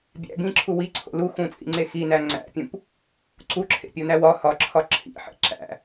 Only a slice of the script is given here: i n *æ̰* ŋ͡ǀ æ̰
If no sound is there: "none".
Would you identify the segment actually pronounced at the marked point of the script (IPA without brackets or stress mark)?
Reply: æ